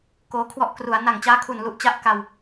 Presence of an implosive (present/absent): absent